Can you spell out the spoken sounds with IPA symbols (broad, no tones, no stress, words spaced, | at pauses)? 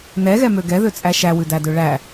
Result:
nɛɣɛmø ɡɛðøt͡sʼæ ʃæwʉdædø ɭæ